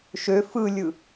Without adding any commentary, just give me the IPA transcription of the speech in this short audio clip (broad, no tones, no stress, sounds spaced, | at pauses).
ʃ ø f ɯ lʲ ɯ